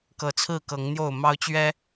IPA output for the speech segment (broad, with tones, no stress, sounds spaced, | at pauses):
k ɤ˨˩ t͡sʰ ɹ̩˥˨ k ɤ˨˦ ŋ n̪ j o˥˨ ʊ̯ m ɑ˦ ʊ̯ t͡ɕ ɥ ɛ˦